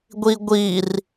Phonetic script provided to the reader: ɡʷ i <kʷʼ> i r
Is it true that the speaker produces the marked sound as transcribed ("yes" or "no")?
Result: no